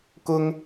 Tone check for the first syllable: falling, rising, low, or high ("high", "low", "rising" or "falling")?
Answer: high